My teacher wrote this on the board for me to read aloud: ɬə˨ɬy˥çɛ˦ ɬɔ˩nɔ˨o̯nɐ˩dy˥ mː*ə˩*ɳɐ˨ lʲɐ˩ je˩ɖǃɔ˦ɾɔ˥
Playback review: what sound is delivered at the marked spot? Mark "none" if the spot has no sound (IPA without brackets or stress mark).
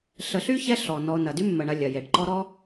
ə˩